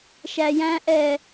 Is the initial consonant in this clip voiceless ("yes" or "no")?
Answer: yes